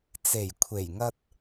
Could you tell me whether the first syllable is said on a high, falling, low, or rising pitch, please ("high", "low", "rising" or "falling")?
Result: low